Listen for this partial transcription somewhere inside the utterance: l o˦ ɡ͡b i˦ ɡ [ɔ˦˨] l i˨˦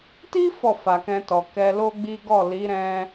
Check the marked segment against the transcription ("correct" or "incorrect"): correct